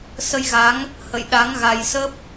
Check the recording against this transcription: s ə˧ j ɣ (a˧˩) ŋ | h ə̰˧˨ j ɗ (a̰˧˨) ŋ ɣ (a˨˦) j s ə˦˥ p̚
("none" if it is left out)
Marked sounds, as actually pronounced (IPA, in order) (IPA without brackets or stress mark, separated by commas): a˨˦, a˨˦, a˧